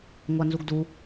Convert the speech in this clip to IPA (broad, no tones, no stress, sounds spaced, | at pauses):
ŋʷ a n z u ɡ d u